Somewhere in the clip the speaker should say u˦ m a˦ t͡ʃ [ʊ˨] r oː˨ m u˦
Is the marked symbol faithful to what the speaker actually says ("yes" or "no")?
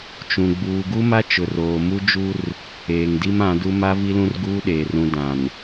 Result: yes